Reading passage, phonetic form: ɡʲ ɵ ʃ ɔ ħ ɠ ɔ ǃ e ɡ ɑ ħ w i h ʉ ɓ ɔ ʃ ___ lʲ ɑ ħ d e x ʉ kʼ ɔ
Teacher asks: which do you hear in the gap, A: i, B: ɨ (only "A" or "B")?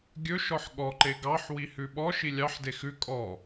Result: A